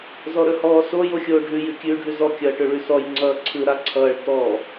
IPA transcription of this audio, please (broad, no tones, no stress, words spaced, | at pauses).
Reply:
zɔɾɵhɔːso joxʲoːɖʱʉ jʉkʲʉːɖʱʉzɔ kʲʌːʈɵɭʉsɔj ŋ͡ǀʌːǀʰɯ ɾaǀʰʌːɭ tɔ